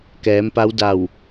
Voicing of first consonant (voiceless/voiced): voiceless